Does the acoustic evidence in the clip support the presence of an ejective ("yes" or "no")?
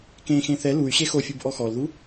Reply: no